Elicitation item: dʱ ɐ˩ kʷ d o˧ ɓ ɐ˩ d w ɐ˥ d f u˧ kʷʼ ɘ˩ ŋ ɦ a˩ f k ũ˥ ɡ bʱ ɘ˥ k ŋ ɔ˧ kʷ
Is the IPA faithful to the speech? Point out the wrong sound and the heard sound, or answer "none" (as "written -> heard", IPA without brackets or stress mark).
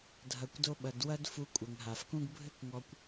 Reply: none